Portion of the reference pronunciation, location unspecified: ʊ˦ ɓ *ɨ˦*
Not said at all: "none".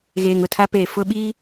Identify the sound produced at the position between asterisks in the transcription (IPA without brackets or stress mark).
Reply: i˦